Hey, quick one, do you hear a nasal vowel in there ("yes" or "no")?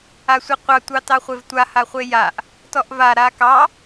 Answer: no